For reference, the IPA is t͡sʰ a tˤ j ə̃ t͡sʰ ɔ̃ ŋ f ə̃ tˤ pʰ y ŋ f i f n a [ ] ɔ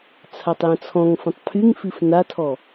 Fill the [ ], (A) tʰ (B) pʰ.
A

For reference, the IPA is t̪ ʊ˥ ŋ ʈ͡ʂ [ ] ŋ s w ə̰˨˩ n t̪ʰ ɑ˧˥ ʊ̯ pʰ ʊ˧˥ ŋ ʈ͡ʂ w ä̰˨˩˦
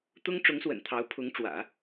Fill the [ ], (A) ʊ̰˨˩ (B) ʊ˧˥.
B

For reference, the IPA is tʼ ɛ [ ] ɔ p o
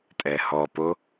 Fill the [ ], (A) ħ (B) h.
B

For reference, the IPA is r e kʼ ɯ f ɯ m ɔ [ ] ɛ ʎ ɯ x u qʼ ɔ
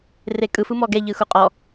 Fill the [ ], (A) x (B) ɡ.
B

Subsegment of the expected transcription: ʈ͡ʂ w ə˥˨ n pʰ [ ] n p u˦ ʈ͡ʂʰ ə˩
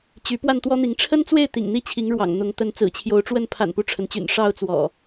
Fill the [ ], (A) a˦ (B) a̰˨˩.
B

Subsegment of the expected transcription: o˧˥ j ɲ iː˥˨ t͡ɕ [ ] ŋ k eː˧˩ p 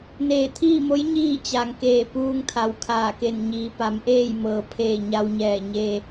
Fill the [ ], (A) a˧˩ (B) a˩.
B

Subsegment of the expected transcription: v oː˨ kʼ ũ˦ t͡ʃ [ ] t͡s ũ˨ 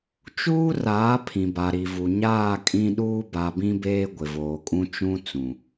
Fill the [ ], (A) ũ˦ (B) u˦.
A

